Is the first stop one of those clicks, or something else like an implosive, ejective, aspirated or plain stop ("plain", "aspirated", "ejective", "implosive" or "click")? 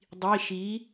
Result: plain